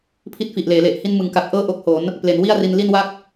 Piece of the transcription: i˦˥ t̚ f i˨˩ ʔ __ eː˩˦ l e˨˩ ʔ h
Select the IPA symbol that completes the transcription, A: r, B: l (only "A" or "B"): B